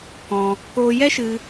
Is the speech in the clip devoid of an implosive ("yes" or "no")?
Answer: yes